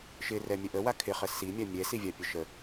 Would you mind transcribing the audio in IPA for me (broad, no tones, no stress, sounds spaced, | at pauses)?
ʃ ɪ r ɛ mʲ ə ʔ ə w a kʰ ɪ χ ə s i mʲ a mʲ ɛ s i vʲ a pʲ ə ʃ ə